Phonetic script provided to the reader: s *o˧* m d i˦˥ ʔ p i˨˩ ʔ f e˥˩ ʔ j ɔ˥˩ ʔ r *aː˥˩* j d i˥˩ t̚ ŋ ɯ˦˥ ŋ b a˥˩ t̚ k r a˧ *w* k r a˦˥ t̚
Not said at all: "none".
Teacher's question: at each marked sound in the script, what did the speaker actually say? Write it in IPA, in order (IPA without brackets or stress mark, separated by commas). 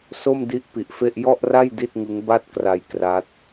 o˥˩, a˥˩, j